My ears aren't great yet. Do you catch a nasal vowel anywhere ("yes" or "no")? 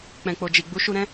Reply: yes